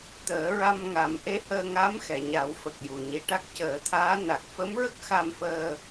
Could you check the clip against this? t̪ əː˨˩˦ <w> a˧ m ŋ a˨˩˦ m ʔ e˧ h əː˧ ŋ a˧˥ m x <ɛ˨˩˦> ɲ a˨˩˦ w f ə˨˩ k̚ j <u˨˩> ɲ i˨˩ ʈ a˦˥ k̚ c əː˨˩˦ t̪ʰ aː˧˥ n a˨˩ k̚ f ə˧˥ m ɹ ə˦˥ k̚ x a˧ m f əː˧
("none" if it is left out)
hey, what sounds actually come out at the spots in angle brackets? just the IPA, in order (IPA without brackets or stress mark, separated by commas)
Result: ɹ, ɛ˨˩˨, u˨˩